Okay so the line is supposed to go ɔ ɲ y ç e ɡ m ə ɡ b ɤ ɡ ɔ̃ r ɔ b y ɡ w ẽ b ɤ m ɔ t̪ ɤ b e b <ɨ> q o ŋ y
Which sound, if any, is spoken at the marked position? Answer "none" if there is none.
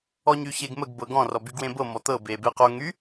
e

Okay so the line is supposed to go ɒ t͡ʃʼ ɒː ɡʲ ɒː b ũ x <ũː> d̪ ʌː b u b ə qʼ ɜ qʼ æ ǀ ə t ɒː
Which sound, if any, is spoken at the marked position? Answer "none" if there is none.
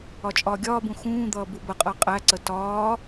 ũː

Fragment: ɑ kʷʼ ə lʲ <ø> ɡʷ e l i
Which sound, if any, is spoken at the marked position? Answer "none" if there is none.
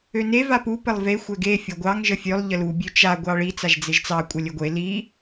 ɘ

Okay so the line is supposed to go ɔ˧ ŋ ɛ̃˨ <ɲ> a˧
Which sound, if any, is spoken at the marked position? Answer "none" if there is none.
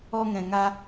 ŋ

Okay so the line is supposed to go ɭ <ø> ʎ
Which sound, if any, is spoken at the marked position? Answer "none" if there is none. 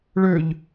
ø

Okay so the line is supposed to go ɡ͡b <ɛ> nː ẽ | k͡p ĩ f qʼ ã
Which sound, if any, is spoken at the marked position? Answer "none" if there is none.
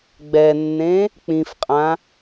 ɛ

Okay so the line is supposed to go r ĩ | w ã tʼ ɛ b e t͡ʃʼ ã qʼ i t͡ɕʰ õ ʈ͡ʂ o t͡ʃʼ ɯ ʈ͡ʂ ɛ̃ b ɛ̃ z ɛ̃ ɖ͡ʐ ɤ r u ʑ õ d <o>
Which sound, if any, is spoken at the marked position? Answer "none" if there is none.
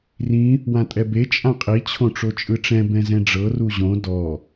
ɔ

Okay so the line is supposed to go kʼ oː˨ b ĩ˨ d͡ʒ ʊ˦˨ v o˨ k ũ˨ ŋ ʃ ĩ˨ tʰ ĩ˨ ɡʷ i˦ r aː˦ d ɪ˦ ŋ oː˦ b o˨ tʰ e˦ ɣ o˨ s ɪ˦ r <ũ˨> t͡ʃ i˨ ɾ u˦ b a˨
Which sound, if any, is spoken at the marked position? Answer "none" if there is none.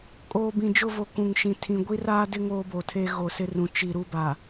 ũ˨˦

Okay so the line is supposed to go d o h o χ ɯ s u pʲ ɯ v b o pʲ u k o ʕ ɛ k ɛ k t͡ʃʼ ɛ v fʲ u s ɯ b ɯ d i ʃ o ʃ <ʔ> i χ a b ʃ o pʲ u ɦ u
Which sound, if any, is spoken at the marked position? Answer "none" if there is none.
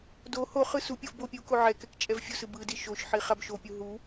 ħ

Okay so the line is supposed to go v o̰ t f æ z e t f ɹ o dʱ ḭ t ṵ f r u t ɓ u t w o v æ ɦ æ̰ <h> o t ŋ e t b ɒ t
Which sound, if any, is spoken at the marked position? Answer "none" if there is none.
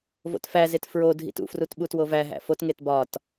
f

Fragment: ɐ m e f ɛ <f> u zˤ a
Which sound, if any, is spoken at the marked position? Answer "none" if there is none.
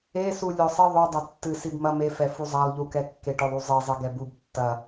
f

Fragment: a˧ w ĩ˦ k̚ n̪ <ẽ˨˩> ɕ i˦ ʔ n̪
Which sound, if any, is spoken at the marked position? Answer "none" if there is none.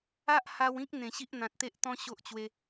ẽ˨˩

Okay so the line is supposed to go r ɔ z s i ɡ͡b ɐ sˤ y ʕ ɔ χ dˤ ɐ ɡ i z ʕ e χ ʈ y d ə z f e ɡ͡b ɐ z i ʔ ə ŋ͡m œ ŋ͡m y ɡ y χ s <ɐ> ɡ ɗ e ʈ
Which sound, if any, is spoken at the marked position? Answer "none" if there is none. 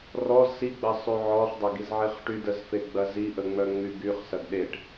ɐ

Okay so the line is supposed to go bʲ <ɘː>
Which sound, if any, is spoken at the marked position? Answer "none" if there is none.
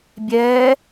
ɛː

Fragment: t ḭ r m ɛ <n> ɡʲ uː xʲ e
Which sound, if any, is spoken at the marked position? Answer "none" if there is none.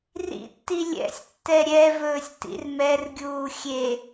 r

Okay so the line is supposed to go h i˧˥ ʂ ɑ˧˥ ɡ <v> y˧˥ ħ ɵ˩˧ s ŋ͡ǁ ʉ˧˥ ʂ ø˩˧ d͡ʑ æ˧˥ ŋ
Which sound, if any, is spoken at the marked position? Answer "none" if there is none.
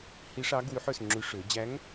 w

